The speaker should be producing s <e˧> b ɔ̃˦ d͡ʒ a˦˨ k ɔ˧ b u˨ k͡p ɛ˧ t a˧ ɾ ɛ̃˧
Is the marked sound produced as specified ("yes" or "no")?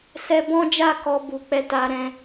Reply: no